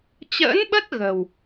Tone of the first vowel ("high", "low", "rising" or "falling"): rising